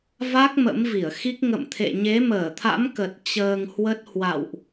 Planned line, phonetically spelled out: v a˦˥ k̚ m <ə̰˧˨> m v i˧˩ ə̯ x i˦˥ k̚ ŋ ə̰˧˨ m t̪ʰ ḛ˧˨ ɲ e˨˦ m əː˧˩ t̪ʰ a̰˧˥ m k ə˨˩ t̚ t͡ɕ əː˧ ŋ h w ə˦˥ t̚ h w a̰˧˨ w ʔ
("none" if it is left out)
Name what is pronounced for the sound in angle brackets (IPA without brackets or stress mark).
ə̰˧˥